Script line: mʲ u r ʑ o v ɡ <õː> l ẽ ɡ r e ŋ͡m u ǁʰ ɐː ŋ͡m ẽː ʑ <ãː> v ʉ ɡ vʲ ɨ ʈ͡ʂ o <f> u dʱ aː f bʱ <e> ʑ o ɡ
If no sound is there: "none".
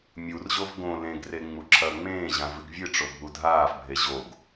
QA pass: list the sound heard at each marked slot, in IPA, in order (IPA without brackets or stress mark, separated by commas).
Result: õ, ã, bʱ, e